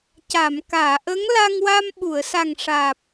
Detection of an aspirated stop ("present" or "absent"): absent